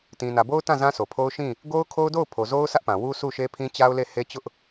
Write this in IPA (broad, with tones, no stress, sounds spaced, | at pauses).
t ĩ˨ n ä˨ b o˦ ʊ̯ t ã˦˨ z ã˦ s o˨ pʰ o˦ ʊ̯ ʃ ĩ˦˨ | ɡ o˦ ʊ̯ kʰ o˦ ʊ̯ d o˦˨ ʊ̯ pʰ o˨ z o˦ ʊ̯ sʰ ä˦ ʔ p ã˨ w u˦ s u˦˨ ʃ e˦ pʰ ĩ˦ t͡ɕ a˦ ʊ̯ l e˦˨ h e˦ t͡ɕ ʊ˦ ʔ